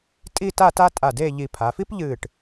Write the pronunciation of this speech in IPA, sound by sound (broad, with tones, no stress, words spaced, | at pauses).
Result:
tʼi˥˧ta˥˧ta˥ tʼa˧˩de˥˧ʎi˧ pʰa˩˧fi˥pʎɨ˧˩ʈ